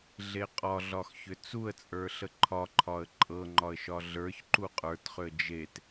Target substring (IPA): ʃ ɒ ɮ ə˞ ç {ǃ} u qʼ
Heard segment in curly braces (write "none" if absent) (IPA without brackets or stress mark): ǃ